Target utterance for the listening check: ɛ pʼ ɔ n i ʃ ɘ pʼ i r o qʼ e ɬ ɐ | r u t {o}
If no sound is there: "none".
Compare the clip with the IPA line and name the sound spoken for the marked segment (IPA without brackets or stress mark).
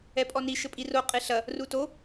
o